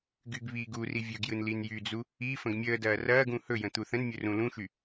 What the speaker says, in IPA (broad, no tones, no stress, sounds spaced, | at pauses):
ɡ y ɡ β iː ɡ u r i vʲ ɵ ɡ j ɯ n l i n j y d͡z u | i f ə̃ ɡ mʲ əː d ɐː r ɐː ɡ ũ h ɵ j ə̃ t̪ u θ ə̃ n mʲ ɵ r ũ l ũ ʃ y